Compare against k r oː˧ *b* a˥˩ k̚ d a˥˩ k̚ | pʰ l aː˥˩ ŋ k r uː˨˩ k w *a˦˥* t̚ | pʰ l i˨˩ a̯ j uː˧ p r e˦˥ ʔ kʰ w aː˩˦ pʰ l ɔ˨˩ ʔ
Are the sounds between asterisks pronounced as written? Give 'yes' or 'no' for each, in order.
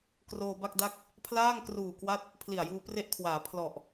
yes, yes

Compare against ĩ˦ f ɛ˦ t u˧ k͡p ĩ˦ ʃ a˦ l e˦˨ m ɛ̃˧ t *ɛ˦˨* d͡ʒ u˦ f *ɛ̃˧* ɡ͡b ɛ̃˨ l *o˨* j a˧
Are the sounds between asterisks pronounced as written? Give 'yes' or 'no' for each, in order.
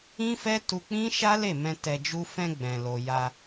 no, yes, yes

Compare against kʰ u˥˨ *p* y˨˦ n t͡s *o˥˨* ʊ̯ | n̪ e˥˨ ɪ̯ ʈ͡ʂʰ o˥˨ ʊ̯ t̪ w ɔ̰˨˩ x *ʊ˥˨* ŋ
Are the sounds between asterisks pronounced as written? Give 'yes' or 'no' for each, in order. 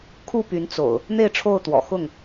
yes, no, yes

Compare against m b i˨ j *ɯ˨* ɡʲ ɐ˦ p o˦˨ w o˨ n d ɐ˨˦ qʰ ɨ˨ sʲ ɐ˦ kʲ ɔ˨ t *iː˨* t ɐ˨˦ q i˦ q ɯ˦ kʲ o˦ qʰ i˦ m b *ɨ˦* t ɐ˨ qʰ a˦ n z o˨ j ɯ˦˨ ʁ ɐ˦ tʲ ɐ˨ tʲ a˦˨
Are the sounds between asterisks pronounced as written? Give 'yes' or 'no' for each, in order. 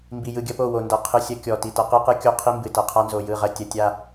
yes, no, no

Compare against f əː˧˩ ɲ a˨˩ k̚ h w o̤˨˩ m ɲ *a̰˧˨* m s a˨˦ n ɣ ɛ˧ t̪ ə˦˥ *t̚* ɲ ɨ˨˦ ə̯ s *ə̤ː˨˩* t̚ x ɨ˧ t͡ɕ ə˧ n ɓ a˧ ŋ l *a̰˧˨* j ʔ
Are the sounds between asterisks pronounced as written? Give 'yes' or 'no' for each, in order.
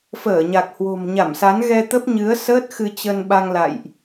no, no, no, yes

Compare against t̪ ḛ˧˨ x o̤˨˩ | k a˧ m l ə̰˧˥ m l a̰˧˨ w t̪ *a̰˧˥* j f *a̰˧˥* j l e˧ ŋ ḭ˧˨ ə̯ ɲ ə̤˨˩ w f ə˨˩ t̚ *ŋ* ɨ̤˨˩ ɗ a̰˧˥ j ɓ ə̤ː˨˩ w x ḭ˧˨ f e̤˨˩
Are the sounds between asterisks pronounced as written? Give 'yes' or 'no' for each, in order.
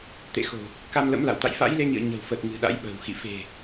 no, yes, yes

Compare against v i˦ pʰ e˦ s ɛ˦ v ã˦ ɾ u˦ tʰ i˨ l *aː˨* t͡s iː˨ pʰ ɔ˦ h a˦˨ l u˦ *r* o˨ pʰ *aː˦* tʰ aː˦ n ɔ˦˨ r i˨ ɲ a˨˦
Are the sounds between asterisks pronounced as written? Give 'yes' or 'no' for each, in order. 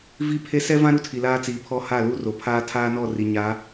no, yes, yes

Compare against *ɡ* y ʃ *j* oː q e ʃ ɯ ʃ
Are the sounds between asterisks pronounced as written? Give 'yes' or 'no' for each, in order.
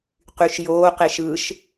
no, yes

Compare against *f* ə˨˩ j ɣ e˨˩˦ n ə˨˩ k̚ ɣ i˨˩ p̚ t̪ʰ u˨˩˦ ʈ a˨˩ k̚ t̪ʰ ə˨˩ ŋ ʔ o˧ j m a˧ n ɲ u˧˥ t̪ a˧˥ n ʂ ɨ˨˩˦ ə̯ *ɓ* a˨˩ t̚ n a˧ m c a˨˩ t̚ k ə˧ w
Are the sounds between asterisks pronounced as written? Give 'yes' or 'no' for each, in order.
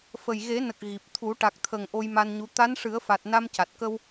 yes, no

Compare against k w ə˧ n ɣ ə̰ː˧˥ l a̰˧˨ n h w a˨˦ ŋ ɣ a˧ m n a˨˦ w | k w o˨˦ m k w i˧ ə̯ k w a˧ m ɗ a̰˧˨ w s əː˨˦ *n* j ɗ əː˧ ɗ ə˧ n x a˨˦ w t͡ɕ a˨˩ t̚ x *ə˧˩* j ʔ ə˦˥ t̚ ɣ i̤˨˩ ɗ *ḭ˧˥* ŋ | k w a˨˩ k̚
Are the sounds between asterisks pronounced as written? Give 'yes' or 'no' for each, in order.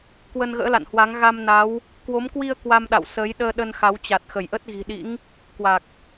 no, yes, yes

